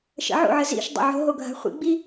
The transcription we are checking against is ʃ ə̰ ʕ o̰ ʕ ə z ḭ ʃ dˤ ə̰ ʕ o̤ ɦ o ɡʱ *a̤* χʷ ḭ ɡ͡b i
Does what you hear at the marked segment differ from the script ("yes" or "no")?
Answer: no